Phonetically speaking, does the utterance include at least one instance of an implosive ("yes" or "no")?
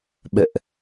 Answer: yes